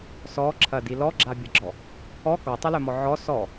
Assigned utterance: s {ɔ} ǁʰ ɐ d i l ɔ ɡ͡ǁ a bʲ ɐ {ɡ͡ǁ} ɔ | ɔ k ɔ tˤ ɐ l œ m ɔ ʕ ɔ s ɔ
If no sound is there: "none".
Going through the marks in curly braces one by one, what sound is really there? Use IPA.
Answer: ɔ, ɡ͡ǁ

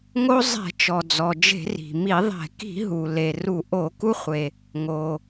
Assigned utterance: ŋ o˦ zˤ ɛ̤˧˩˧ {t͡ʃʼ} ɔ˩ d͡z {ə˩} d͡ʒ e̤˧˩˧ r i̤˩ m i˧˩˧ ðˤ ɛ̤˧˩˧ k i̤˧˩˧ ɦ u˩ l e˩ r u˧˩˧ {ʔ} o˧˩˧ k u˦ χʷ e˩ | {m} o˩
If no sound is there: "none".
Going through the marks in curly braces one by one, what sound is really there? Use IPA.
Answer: t͡ʃ, ɔ˩, ʔ, ŋ

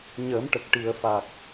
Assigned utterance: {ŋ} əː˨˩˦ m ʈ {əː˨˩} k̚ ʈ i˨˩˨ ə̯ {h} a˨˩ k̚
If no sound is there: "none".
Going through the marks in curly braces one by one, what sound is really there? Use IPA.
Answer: ɲ, ə˨˩, f

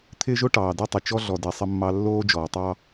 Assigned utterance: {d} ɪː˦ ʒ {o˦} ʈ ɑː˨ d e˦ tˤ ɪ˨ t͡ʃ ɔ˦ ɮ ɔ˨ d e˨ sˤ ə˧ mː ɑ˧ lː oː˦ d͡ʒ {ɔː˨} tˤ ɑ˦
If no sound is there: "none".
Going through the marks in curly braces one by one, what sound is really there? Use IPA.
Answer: t̪ʰ, o˦, ɔː˨

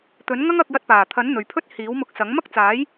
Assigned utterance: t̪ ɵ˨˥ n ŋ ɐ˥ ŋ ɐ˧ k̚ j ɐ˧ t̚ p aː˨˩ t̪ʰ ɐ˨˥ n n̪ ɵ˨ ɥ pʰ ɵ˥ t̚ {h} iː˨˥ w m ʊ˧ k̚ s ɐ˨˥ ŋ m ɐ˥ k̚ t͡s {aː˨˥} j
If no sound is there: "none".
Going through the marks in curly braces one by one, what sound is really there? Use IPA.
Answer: h, aː˨˥

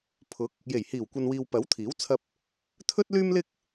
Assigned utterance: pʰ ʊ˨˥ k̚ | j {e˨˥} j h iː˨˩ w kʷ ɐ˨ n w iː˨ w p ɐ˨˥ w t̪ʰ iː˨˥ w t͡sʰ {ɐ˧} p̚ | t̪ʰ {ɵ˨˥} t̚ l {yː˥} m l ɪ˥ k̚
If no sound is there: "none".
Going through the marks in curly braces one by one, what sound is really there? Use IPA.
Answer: e˨˩, ɐ˧, ɵ˥, yː˥

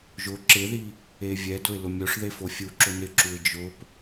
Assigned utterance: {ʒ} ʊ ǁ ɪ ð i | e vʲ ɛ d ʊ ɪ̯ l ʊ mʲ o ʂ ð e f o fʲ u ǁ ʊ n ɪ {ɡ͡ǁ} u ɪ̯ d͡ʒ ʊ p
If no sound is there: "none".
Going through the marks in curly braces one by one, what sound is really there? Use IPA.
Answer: ʒ, ǁ

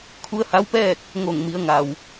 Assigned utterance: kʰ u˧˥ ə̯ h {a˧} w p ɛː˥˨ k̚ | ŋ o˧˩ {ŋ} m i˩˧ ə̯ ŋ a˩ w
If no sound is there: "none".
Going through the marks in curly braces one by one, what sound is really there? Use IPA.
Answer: a˧˥, ŋ

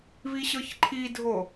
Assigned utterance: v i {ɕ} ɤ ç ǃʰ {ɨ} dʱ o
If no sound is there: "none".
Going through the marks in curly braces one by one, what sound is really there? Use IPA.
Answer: ɕ, i

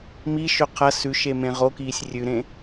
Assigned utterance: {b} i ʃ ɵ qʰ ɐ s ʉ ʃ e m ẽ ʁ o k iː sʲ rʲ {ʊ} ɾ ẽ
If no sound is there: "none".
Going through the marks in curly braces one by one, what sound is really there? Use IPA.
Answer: m, ʉ

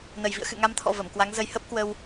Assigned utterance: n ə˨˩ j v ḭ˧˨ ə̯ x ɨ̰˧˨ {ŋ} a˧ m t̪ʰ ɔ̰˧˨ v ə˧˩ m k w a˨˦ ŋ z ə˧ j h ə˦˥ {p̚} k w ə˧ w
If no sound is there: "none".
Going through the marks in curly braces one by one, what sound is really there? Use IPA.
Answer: ŋ, p̚

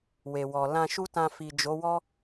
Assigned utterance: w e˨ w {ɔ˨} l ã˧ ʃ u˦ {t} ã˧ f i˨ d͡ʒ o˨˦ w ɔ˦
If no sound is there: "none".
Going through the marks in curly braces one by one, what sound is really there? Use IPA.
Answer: ɔ˨, t

